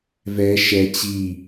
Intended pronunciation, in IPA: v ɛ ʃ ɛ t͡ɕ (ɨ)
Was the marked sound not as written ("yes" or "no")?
yes